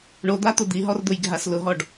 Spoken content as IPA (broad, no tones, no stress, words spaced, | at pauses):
ɳod̪at̪ʊ d̪iɦɔrd̪ʊjɡʱas lʊɦɔɖ